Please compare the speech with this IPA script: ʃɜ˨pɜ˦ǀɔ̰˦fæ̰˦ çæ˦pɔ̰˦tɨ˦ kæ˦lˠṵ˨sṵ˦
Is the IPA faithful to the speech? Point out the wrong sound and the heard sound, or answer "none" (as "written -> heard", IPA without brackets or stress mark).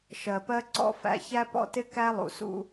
ɨ˦ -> ɪ˦